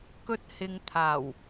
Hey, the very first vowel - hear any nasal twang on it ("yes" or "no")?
no